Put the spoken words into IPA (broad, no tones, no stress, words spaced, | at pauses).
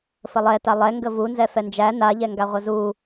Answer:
fəlˠɛta lˠɛŋɡə vunzɛ fɛnd͡ʒæ na ʎɛŋɡaʁʷəzu